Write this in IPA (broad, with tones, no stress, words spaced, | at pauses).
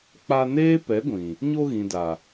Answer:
k͡pa˧neː˦ pɛ˨˦ɡʷĩ˨ | ɲo˧ɣĩ˨da˨